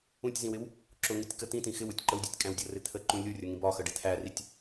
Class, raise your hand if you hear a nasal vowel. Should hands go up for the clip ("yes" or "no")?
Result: yes